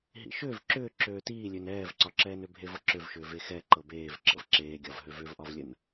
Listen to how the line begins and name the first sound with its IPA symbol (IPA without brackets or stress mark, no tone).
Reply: ɦ